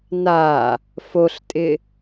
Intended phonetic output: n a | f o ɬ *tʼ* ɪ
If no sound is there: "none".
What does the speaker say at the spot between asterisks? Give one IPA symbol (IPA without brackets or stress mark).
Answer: tʼ